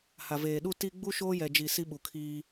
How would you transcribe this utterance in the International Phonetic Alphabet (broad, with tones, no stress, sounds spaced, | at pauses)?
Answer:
h a˨ v eː˨ ɗ u˦ t i˦ ɡ͡b u˦ ʃ oː˦ j ɛ˨ d͡ʒ i˨ s i˦ ɓ u˨ kʰ iː˦